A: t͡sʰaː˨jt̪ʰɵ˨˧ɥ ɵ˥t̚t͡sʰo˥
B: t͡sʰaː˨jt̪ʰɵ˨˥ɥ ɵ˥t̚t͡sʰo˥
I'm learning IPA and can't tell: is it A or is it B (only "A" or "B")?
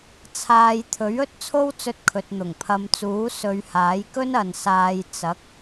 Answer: B